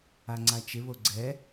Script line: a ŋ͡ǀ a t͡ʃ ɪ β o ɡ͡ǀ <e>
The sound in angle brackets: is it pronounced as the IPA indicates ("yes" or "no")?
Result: no